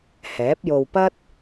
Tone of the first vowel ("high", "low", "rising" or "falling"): rising